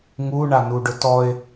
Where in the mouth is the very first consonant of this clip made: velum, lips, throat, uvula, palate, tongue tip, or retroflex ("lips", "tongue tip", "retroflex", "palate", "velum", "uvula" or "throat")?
velum